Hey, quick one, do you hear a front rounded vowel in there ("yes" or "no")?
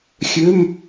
yes